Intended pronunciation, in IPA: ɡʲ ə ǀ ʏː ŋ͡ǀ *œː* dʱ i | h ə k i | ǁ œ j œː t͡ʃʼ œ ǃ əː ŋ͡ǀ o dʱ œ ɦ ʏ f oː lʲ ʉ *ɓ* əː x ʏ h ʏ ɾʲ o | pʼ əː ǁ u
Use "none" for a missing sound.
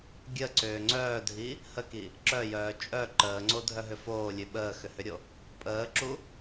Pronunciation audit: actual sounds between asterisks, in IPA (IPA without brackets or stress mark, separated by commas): œː, ɓ